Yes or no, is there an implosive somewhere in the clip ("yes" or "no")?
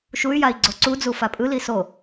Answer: no